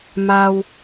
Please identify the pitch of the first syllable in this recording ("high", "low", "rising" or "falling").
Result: high